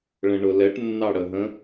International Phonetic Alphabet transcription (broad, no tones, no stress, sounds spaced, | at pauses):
ɭ ə̃ ɳ ʊ l ɛ ʈ nː ɑ ɽ ə ɦ ə̃